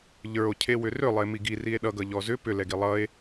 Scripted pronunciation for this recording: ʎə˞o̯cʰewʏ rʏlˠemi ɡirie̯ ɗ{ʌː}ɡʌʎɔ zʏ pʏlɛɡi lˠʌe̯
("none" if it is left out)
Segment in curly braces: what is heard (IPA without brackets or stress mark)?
ʌ